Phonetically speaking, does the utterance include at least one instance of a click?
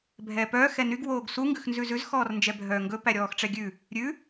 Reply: no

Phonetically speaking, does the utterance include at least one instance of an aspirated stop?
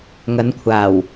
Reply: yes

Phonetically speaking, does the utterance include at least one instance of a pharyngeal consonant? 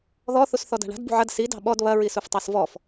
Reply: yes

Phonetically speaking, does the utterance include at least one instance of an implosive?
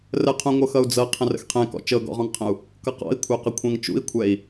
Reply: no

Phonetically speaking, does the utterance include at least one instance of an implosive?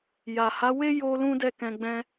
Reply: no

